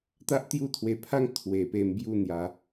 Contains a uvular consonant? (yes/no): no